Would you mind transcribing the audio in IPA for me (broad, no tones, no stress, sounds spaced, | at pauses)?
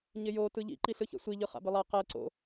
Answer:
ɲ ɪ j o t ɯ ʎ ḭ ǃ i ɬ ɯ ç ɛ̰ sʷ i ʎ ɯ χ a̰ b ɪ lˠ a q ɛ ǀ o̰